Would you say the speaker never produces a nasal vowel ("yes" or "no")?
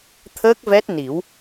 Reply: yes